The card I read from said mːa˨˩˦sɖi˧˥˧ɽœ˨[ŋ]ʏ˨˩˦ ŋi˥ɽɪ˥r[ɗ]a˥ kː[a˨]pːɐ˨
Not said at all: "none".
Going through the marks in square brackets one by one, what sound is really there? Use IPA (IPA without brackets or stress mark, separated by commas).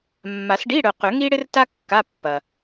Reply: q, t, a˧˥˧